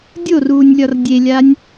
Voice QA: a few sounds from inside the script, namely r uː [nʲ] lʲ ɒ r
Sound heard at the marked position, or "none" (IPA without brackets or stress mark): nʲ